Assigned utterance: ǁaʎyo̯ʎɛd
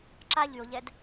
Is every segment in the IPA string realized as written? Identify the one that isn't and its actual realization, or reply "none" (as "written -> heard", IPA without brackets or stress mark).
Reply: none